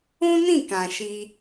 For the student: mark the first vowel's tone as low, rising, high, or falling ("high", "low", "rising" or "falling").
high